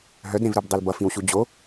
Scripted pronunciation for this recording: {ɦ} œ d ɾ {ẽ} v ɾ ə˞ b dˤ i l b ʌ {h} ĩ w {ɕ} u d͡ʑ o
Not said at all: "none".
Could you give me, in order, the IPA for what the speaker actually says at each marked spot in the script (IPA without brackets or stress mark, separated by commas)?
ɦ, ẽ, f, ɕ